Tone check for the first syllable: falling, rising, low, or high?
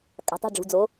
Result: low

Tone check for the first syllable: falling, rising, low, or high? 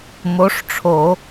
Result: rising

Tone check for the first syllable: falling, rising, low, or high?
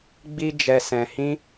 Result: high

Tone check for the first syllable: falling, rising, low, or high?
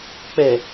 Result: low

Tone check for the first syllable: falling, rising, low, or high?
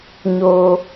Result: high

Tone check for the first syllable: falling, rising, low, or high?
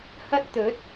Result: high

